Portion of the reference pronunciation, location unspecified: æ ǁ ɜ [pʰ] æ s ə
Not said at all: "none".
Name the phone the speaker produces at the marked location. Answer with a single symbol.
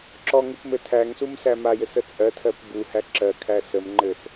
kʰ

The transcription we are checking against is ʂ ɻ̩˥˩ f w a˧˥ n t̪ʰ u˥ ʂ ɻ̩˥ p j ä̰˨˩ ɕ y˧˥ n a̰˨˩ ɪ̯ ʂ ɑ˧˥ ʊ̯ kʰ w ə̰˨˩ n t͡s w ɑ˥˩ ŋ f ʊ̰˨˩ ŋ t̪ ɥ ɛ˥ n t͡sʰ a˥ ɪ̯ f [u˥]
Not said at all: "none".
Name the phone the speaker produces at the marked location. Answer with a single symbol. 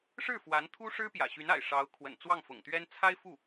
u˥˩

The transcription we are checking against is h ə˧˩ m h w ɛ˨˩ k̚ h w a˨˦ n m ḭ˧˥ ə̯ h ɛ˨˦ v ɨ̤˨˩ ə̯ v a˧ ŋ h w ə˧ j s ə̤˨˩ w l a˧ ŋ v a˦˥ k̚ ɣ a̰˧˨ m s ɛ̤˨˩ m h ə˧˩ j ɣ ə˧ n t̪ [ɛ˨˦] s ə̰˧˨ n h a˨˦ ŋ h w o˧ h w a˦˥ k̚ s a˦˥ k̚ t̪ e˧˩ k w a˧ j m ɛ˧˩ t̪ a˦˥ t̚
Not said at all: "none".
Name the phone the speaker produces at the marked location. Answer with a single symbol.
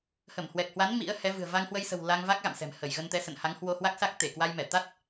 ɛ˨˦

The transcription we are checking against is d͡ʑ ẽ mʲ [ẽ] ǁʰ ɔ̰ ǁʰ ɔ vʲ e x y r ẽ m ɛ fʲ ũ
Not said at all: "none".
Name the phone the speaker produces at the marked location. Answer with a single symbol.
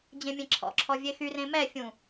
ẽ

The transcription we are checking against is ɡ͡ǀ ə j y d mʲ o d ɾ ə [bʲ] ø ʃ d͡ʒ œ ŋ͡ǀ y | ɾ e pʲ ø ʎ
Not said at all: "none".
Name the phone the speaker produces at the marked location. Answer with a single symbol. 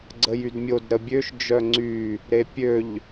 bʲ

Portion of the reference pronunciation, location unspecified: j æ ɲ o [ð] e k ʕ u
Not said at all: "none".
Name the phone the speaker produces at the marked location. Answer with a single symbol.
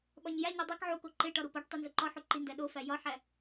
dˤ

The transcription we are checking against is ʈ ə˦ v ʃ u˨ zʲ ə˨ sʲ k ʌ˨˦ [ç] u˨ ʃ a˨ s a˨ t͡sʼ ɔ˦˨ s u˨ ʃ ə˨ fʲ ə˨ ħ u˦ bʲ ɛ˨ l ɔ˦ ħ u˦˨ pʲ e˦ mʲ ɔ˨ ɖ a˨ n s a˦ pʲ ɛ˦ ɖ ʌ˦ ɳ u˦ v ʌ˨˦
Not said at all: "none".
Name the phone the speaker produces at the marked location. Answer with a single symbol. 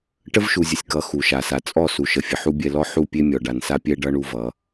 x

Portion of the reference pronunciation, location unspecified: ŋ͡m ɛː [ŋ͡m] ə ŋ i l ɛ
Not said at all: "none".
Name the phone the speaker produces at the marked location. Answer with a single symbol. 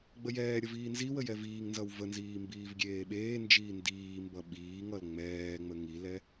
ŋ͡m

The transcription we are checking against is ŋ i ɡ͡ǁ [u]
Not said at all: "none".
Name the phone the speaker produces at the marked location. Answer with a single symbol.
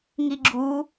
u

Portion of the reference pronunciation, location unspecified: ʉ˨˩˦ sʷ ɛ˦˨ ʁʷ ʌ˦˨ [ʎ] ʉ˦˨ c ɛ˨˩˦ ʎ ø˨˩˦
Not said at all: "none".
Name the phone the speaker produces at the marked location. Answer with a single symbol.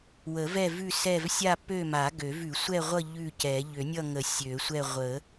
ʎ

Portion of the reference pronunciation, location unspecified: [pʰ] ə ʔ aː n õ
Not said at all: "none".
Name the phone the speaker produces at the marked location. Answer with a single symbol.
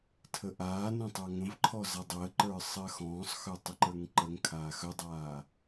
tʰ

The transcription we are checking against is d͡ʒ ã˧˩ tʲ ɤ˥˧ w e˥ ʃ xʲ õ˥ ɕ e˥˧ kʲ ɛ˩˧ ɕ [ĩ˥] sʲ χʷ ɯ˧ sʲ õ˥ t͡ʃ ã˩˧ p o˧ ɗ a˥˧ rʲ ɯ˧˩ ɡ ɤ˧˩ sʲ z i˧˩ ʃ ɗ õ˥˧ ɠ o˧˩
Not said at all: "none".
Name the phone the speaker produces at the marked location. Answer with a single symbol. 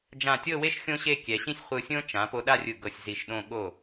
ĩ˥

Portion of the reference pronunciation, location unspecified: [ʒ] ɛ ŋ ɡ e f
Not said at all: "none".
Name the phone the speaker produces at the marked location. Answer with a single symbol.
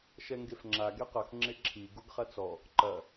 ʃ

